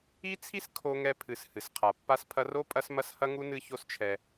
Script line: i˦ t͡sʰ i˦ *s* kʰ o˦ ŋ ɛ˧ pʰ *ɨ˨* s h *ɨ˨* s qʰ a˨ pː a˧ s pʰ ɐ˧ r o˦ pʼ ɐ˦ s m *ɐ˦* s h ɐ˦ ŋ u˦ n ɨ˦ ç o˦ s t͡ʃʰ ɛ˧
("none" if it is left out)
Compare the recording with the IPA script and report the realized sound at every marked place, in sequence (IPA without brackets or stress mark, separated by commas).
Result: s, ɨ˨, ɨ˨, ɐ˦